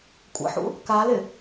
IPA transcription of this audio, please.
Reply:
kʷʼ ə̰ ħ ṵ | k a l ɪ

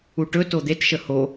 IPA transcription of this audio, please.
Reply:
u ʈ ɵ t o d̪ e t ʃ ə h o

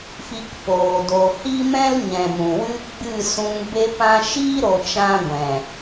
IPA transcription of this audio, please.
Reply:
f i˧ k p oː˨ d o˨ h i˦ m ɛ̃˦ l ɲ ɛ̃˨ m ũ˨ w ɨ˦ ɡ͡b ɨ˦˨ s ũ˧ ŋ b e˧ p ã˧ ʃ iː˦ ɾ o˨ t͡ʃ ã˧ ɡʷ ɛ̃˨

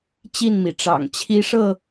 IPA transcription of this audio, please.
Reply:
t͡ɕ i˥˨ n m i˩ ʈ͡ʂ ɑ̰˨˩ ŋ t͡ɕʰ i˦ ʂ ɤ˥˨

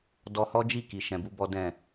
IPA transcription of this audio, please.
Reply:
d ɔ˧ h ɔ˦ d͡ʒ i˦˨ k i˨ ʃ ɛ̃˧ b u˦ b ɔ˦ d ɛ̃˦˨

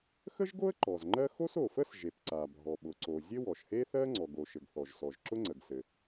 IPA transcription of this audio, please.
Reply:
x ə˥ ʒ ɡ o˥ ə̯ ǃ ɔ˩ z ŋ͡ǃ ɜ˥ x o˥ s o˩ f ə˥ s ʒ e˩ p ǀ a˩ bʱ ɔ˩ ɓ ʊ˩ ǀ o˩ zʲ ɘ˥ w ɔ˩ ʃ h e˥ θ ɜ˥ ŋ͡ǀ ɔ˩ ɡ o˩ ʃ ɘ˩ ɡ θ ɔ˩ ʒ s ɔ˩ ʒ ǁ ʊ˥ ŋ͡ǀ ə˩ ɡ s ɘ˩

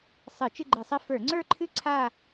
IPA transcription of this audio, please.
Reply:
sˤ ɨ˧˩˧ t͡ʃ ɨ˥˧ ɡ͡ǃ ɨ˧˩˧ sˤ ɘ˥˧ f ə˞˧˩˧ ŋ͡ǀ ə˞˥˧ ǃʰ ɨ˥˧ ǀʰ a˥˧

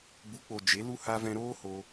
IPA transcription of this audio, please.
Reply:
b u˨˦ k͡p o˨ d͡ʒ e˨˦ l u˦ h a˧ v ɛ̃˧ ɾ oː˦ h o˧

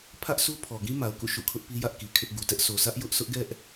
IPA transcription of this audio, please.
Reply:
pʰ ä˦ ʔ sʰ u˦ pʰ ɔ˨ ɡ ĩ˦ m a˨ ʊ̯ k ṵ˦˨ ʃ ṵ˦˨ kʰ ʊ˦ ʔ p i˦ j ä˦ ʔ k i˨ kʰ ɪ˦ ʔ ɡ u˨ t ɛ˦ ʔ sʰ o˨ sʰ ä˦ ʔ j ʊ˦ ʔ sʰ ʊ˦ ʔ ɡ ɛ˦ ʔ

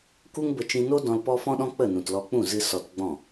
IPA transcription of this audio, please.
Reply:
k u˦ ŋ b ə˧ t͡ʃ ĩ˧ n o˦ d ɔ̃˧ l p ɔ˦ f ɔ̃˦ ɗ ɔ̃˦ k͡p ə˦˨ n ũ˨ t l ɔ˧ k͡p ũ˦˨ z ɨ˧ s ɔ˧ t ɡ͡b ɔ̃˦˨

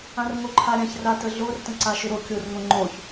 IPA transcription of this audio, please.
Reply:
ã r ŋ o ǃʰ a ɾʲ ã ç r a t ə ɮ o r t ə̃ ǀ a ʃ ʏ ɾ o kʲ o r ŋ õ ŋ͡ǃ o ç

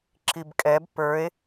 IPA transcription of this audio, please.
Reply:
ǁ i b kʼ ɛ b p ə˞ e̯

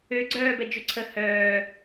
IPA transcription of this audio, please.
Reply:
ø ɡ͡ǀ œː b ɛ d͡ʒ ø ǀʰ ə h œː

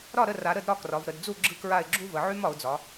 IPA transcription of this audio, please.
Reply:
ɾ ɒ˥˩ ɾ ə˥˩ r a˩˧ ɾ ə˥˩ d ɾ ɒ˧˥ k r ɒ˩˧ v ɾ ə˩˧ d d͡z u˥˩ ɡ͡ǁ ɯ˥˩ k ɹ a˥˩ ɪ̯ ɡ͡ǁ u˥ v ə˩˧ ʕ y˥ m ɒ˩˧ ʊ̯ d͡z ɒ˩˧

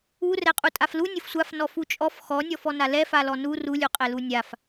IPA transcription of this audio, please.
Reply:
u r ɛ qʼ u tʼ a f l u nʲ ʊ f sʷ a f n ɔ f u t͡ʃʼ ɔ f x ɔ nʲ ɔ f ɔ n a l ɛ f a l ɔ n u r u lʲ u qʼ ɛ l u nʲ a f

